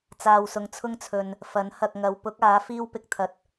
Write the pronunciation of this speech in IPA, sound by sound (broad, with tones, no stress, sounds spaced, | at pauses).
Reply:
t͡s aː˨ w s ʊ˨ ŋ t͡sʰ ʊ˥ ŋ t͡sʰ ɵ˨ n | f ɐ˨˥ n h ɐ˨ k̚ ŋ ɐ˨˧ w p ʊ˨˥ k̚ aː˨˥ f iː˥ w p ɪ˧ k̚ t̪ʰ ɐ˨˥ t̚